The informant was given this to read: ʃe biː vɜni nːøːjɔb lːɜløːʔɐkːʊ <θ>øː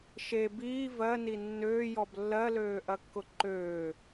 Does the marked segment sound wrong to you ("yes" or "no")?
yes